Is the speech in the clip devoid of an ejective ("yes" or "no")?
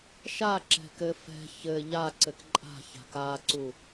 no